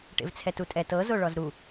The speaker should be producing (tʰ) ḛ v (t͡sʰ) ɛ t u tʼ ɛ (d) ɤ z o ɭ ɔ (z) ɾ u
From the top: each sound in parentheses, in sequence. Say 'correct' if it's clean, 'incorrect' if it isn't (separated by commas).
incorrect, correct, incorrect, correct